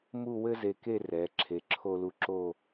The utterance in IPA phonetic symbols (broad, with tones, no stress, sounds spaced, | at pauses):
m u˥˧ w ɘ˥ z e˧ k e˥˧ r ɛ˩˧ ǁʰ e˩˧ ǁʰ o˧ l u˧˩ ǁ o˥˧